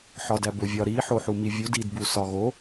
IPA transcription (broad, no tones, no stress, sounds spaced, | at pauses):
ħ ɒ d æ b o vʲ ɒ ɾ i ħ o ħ u m i vʲ u d i d b u s ɒ ɣ o